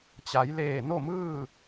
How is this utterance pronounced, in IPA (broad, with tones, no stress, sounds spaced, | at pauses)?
t͡ɕ a˩˧ j l eː˧˩ n o˥˨ m ɯː˥˨